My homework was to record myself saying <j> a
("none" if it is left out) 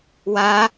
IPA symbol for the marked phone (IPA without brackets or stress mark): w